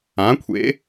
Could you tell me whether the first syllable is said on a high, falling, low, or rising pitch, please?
rising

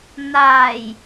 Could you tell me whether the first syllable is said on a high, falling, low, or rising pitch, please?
low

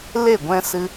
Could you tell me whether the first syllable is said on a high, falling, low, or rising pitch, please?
falling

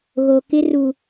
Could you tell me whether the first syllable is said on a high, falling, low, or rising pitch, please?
low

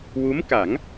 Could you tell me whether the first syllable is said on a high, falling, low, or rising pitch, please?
rising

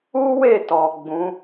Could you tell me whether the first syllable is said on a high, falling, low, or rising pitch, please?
high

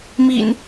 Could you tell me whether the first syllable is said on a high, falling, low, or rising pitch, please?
low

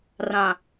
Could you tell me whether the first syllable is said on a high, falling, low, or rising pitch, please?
low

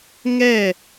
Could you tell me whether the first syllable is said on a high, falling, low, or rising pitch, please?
falling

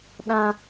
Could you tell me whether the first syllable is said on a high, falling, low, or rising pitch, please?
high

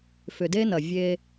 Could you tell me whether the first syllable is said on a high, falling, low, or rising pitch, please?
low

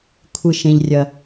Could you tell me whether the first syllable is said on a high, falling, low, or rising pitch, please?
high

